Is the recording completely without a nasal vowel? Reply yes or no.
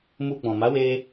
no